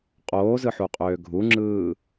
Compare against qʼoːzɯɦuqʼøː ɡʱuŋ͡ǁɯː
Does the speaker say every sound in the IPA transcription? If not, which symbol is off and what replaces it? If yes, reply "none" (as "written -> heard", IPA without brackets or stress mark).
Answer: ɦ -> ħ